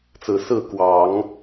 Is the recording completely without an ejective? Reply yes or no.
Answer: yes